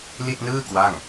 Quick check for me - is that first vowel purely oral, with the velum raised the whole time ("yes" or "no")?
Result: yes